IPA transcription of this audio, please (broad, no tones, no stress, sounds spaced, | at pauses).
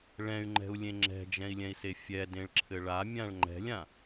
ɭ ɛ̃ y̯ ŋ͡ǃ ɛ̤ u̯ lʲ ẽ ŋ͡ǁ ɛ̤ d͡ʒ ɛ̃ i̯ lʲ ɛ̃ i̯ s e fʲ ɛ d ẽ ɭ ǁʰ ɘ ɭ a mʲ ã ɭ ŋ͡ǃ ɛ̤ lʲ ã